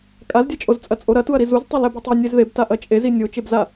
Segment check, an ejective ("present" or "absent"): present